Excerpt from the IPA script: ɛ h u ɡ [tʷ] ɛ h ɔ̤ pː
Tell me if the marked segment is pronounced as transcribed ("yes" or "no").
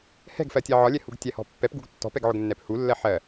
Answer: no